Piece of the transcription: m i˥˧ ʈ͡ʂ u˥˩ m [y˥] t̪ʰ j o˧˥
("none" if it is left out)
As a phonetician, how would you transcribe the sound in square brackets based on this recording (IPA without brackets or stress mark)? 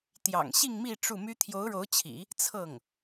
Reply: y˥